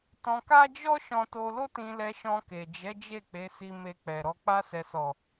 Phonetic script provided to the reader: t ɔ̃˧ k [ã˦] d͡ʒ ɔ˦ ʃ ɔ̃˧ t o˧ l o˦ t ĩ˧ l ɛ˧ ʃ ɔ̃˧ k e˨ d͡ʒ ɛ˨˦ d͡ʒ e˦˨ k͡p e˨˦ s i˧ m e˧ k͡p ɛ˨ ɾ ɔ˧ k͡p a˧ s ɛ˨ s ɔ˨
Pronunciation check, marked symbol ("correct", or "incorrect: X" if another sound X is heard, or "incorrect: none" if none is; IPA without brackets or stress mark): incorrect: a˦